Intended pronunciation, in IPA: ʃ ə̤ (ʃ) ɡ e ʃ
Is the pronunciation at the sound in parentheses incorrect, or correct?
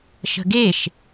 incorrect